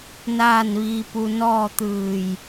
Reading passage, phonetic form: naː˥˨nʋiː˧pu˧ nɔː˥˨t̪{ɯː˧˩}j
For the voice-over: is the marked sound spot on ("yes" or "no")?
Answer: yes